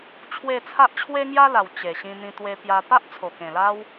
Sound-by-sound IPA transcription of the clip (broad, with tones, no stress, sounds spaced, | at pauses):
t͡ɕʰ w e˥˧ t͡sʰ a˦ ʔ t͡ɕʰ w e˦ ŋ j a˦ l a˨˩ w t͡ɕ e˨˩ ɕ ĩ˧ n̪ ĩ˧ t̪ w e˧ p j a˧ p a˦ ʔ t͡sʰ o˨˩ k ẽ˨˩ l a˦ w